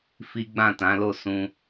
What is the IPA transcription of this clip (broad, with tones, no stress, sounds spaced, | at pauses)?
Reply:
f i˦ ɡ͡b ã˦˨ t ã˨˦ l o˦˨ s ũ˧